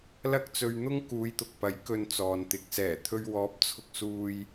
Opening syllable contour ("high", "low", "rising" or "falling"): high